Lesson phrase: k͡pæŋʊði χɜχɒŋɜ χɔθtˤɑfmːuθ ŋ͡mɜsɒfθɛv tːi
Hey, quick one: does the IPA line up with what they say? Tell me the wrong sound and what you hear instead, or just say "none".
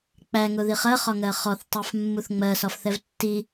none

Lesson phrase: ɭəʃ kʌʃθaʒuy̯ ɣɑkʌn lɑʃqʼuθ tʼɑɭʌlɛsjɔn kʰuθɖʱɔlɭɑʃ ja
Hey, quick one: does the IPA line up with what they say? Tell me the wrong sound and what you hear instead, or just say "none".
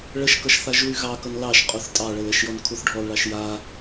s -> ʃ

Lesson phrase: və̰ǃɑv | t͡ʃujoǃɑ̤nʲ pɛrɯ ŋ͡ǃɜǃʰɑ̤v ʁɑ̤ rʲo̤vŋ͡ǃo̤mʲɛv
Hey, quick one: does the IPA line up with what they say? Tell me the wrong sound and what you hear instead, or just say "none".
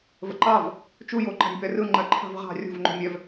none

